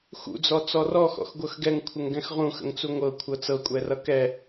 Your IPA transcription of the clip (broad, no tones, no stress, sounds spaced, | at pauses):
x ṵ d͡z ɔ t͡s ɔ r ɔ x ɔ̰ x ɡʷ ɤ x ɡ ɛ ŋ kʷʰ ə ŋ ɡ ɛ̃ x ʁ ũ x ə̰ ŋ t͡s u ŋʷ ɤ kʷʰ ɤ t͡s ɤ kʷʼ ɛ r ʌ k ɛ